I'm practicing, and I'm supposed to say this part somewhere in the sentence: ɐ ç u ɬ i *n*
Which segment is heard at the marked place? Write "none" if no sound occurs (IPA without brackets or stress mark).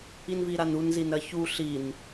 n